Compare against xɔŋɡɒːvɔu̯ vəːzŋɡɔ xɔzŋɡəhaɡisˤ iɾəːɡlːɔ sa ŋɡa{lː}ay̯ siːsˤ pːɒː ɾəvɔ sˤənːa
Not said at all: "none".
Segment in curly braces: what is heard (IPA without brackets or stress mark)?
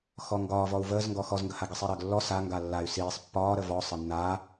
lː